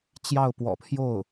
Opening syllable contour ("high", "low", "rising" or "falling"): falling